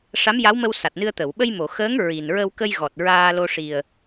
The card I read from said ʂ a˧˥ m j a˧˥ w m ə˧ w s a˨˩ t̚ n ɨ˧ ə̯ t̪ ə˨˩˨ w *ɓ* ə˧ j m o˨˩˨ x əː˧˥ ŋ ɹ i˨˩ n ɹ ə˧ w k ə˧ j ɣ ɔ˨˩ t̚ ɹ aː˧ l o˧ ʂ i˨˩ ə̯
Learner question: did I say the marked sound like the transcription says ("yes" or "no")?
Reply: yes